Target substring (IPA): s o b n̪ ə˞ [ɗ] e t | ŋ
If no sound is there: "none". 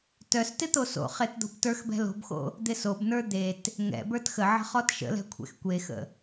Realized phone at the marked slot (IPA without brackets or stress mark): d̪